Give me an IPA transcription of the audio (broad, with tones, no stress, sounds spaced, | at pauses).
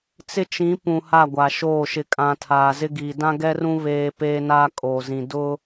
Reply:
t͡s ɪ˦ t͡ʃ ĩ˨˦ p ũ˨ h a˦˨ ɡʷ a˨ ʃ oː˦˨ ʃ ɪ˨ kʼ ã˨ tʰ aː˨ z ɪ˦ ɡ iː˨ d ã˦ ɡ ɛ˦ r ũ˦ β eː˦ p eː˦ n aː˦ kʼ oː˨ z ĩ˨ d ʊ˦